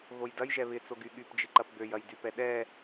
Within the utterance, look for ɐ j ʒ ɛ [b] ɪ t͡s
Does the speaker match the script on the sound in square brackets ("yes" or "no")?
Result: no